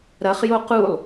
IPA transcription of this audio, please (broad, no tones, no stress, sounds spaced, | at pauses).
ɾ ɐ χ j o q u lˠ